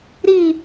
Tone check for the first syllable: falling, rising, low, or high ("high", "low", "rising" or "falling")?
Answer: falling